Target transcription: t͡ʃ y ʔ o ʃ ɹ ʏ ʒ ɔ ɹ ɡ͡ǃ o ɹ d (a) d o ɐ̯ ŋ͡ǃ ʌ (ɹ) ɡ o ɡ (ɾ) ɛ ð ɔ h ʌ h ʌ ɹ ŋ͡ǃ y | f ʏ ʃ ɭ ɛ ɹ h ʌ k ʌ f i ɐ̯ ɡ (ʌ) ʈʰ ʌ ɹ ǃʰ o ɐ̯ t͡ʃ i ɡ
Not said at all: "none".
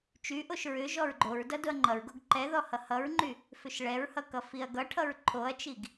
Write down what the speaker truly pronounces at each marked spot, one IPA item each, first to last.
ʌ, ɹ, ǃ, ʌ

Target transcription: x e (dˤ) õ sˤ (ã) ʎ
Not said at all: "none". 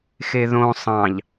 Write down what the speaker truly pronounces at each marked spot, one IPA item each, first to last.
ð, ɑ̃

